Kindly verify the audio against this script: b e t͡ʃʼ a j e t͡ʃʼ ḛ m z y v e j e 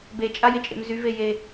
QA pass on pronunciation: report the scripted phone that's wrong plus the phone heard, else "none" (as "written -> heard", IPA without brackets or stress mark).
none